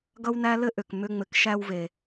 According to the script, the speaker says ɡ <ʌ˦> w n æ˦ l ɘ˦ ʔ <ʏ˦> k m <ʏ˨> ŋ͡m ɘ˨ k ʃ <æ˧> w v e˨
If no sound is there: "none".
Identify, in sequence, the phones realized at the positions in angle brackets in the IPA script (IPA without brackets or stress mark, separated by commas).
ʌ˦, ʏ˨, ʏ˧, æ˧